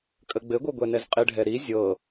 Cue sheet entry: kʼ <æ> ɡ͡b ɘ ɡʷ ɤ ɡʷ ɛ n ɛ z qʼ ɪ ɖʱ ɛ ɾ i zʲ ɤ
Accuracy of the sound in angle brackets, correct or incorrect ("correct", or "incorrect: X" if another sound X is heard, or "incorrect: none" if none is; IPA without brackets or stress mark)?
incorrect: ə